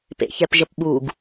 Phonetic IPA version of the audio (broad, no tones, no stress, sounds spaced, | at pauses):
p ḛ ç ɛ p ʒ ə p ɓ u ɡ